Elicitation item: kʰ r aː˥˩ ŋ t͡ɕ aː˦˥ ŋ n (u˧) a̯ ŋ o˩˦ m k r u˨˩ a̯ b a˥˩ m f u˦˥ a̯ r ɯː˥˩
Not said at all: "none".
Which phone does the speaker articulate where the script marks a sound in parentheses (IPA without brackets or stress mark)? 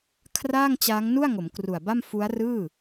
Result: u˥˩